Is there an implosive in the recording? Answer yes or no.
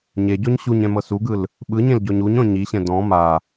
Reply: yes